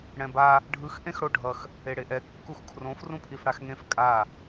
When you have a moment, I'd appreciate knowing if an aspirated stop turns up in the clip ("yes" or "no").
yes